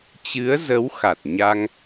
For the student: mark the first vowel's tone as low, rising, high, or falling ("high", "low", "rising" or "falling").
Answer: rising